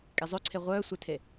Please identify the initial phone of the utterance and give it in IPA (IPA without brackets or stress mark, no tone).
kʼ